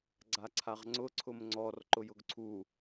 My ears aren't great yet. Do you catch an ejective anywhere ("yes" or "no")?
no